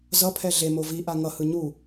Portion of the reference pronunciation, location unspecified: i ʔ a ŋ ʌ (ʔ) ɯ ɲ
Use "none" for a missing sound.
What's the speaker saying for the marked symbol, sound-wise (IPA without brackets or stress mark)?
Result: h